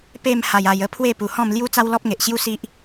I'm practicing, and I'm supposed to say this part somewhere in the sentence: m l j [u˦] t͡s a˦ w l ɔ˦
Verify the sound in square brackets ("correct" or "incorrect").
correct